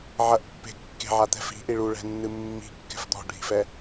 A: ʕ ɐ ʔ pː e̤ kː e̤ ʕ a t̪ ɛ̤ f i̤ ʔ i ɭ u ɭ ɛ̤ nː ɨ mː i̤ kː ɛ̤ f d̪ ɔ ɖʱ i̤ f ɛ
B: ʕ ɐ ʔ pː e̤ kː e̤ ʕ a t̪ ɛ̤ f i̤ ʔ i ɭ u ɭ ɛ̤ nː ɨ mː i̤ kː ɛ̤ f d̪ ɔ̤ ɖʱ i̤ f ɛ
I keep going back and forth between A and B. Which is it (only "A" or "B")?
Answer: B